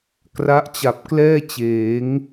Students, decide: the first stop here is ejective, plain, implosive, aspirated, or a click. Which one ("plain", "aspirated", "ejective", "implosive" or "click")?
plain